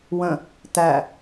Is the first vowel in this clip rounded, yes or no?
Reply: no